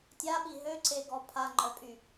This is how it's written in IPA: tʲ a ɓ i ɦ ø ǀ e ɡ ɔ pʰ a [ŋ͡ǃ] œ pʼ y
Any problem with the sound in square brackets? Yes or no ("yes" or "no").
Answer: no